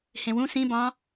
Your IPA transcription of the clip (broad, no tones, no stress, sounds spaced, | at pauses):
h ẽ w ũ s ĩ b ɑ̃